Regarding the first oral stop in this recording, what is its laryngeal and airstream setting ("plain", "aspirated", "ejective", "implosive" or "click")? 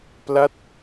plain